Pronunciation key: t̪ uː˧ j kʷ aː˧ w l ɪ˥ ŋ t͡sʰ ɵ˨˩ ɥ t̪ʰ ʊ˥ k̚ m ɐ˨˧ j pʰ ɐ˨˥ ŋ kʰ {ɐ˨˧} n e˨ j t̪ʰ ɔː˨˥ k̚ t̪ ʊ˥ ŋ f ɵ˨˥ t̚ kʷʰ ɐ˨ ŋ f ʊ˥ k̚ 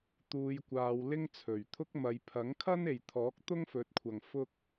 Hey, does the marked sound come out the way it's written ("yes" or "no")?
no